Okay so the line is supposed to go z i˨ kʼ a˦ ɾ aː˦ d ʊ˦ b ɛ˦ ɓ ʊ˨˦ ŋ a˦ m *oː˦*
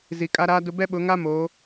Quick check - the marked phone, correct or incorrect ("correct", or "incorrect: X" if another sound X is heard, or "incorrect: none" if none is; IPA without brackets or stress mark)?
incorrect: oː˨˦